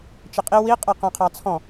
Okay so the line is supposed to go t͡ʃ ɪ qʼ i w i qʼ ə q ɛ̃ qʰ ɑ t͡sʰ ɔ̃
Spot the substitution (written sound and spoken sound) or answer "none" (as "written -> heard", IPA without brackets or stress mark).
none